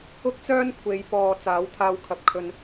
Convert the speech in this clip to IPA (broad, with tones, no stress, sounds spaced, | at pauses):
ʊ˥ k̚ t͡s œː˥ n kʷʰ e˨˧ j p ɔː˨ t͡s aː˨˥ w t̪ʰ aː˧ w kʰ ɐ˨˥ p̚ kʰ ɵ˧ n